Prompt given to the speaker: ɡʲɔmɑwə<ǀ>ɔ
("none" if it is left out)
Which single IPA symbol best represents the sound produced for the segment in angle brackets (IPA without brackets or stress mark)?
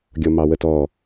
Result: t